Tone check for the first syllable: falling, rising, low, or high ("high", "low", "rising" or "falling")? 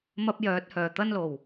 high